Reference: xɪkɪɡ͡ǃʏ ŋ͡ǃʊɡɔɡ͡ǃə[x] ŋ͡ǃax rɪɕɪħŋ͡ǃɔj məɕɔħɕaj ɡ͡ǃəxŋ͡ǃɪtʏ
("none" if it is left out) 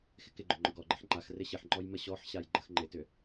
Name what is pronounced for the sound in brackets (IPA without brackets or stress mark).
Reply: ħ